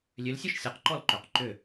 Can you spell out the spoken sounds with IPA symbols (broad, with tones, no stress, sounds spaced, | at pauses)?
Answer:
lʲ ø˨˦ l sʲ ʊ˥˧ ʃ sʲ ø˨˦ q ǃ ɔ˥˩ l ǃ ʏ˨˩˦ q ǃ ʏ˧˩